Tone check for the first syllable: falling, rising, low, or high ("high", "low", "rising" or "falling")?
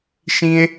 high